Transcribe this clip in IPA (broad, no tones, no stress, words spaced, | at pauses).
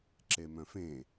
ǁemœ̃fẽ